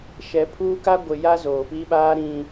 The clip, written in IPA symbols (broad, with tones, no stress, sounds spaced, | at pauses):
ʃ ɛ˨ pʰ uː˦ k a˦ ɡʷ ɪ˨ j a˦ z oː˨ p i˦ ɓ aː˦ ɾ ĩ˨